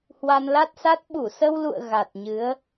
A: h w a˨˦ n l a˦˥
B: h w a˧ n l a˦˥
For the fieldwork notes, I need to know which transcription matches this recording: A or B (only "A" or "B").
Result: B